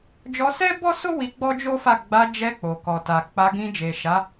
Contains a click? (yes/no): no